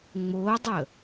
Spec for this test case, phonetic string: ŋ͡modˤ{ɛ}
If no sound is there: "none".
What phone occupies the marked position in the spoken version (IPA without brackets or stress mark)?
ə